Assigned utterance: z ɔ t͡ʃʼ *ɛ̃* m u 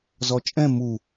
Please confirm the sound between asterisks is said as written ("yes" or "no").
yes